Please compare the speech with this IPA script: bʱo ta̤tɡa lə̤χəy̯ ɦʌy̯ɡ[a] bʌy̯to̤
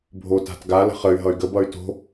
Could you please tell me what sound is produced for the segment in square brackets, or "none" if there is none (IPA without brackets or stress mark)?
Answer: ə